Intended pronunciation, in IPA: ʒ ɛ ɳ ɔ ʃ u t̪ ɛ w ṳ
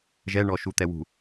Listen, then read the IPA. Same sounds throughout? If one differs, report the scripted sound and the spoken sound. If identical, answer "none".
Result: none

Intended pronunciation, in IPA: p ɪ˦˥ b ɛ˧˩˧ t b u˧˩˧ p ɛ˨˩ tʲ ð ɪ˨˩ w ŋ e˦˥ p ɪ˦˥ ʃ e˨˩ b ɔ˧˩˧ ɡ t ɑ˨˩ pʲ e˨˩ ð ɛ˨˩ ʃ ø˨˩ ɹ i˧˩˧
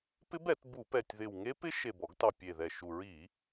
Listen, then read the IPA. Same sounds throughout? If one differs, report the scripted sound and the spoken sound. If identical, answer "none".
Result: ø˨˩ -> u˨˩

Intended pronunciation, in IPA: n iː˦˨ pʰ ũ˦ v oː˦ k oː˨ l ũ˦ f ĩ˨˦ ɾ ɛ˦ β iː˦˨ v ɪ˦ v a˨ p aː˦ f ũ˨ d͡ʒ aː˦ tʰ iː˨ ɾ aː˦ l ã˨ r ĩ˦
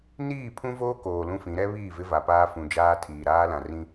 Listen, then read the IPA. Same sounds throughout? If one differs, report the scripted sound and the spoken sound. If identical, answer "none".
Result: none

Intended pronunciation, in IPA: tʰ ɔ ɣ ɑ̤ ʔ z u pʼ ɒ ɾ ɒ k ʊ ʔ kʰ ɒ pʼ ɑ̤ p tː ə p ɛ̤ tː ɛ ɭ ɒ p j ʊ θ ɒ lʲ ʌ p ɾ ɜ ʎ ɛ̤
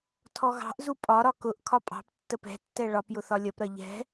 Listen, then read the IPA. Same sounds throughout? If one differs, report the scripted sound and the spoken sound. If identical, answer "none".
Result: none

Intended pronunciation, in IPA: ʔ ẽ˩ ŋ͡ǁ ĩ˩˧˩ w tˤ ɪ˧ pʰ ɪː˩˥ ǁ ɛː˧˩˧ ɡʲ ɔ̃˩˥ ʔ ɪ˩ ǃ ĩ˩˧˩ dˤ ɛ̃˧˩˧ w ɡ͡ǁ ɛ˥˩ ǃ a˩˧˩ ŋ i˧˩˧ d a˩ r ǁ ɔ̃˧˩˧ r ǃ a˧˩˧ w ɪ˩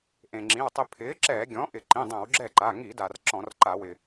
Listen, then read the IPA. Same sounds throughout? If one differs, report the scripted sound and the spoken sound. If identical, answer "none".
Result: none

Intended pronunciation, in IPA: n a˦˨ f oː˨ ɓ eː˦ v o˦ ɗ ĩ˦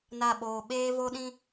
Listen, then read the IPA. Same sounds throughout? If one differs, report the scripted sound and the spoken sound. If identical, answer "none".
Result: f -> ɓ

